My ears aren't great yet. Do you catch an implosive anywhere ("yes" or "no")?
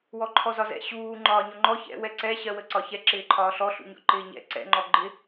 no